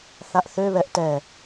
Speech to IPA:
θ a ʔ θ ø β ɛ ʔ t ɛ

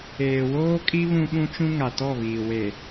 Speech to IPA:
eː˨ w oː˦ kʼ i˦ β ũ˦ ɓ ũ˦ t͡ʃ ũ˦ ŋ a˨ t ɔ˦˨ β iː˨ w e˨

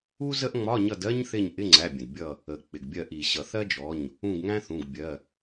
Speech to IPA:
u˥ z ə˥ ʔ ŋ͡m ɒ˧˥˧ ɲ ʌ˦˨ d ɜ˥ ɲ θ ɪ˦˨ ɲ ʔ ɪ˧˥˧ ŋ͡ǀ æ˩˧˩ bʲ ə̃˩ d bʲ ʌ˦˨ | ə˩ k͡p ɪ˩ ɡ bʲ ɜ˦˨ ʔ i˩ ɕ ʌ˩ θ ɜ˥ d͡ʒ ɔ˩˧˩ ɲ | ũ˦˨ ɡ ŋ æ̃˥ θ ũ˩˧˩ ɡ bʲ ɜ˩˧˩

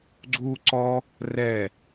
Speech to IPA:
ɡ͡ǀ uː ǀ ɔ | r ɛ

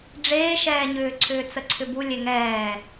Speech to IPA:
ɖ͡ʐ eː ʃ ɛː ɲ ʏː ǀʰ ʏː t͡s ə ǀʰ ʏ b u lʲ ɛ ŋ ɛː

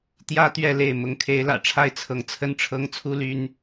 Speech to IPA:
t̪ j ä˥ t̪ ɥ ɛ˥˧ l e˥˩ ɪ̯ m ʊ˧˥ ŋ kʰ e˧˥ ɪ̯ l ä̰˨˩ ʈ͡ʂʰ a˥˧ ɪ̯ t͡sʰ ɤ˥˩ ŋ t͡sʰ ə˥ n ʈ͡ʂʰ ɤ˥ ŋ t͡sʰ u˥ l y˥ n

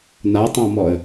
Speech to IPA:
n a tˤ ã m ɔ ə̯

